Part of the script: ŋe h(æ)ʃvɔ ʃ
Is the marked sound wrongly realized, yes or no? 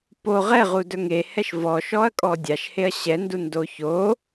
yes